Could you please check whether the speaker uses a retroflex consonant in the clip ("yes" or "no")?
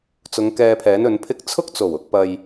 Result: no